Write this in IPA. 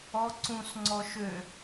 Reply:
ɔ ǀ ũ s ŋ͡ǀ ɔ ʃ ø

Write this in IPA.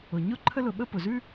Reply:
ʊ˩ ɲ ʊ˥ ǃʰ ə˥ l ʊ˨ ɓ ə˥ p ʊ˩ z ʉ˥

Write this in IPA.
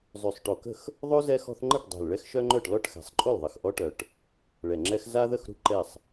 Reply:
zˤ y˨˩ sˤ ʈ o˨˩ k ə̤˥˩ x | ðˤ o˥ z ɛ˥ x ɔ̤˥ θ ŋ͡ǃ ə˥˩ ʈ dˤ ɛ̤˨˩ l ɭ ɛ˥ x ʃ œ˥ ŋ͡ǃ œ˥˩ ʈ l ɔ˥˩ ʈ x ɛ̤˨˩ sˤ ǃʼ o˥˩ l ðˤ ə˨˩ x ʔ ɔ˥ ʈ œ˨˩ ʈ | ɭ ɛ˨˩ ŋ͡ǁ ɛ˥ x z a˥ ð ə˥˩ x ɾ ṳ˥˩ ǃ ɛ˥˩ sˤ

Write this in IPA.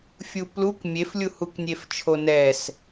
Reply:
fʲ u p l u k mʲ e f lʲ u h u k nʲ e f t͡ʃʰ o n ɛ s

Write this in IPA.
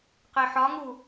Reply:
q e ħ ɒ ŋ u

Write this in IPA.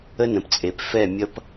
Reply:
ə˦ n ə̃˨ p t͡sʼ e˨ p f ɛ˦˨ mʲ ʌ˦ p

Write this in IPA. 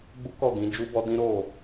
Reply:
ɡ͡b u˦ k ɔ˦˨ ɡ ĩ˨˦ d͡ʒ u˦ b ɔ˦ d ĩ˦ ɾ o˦˨

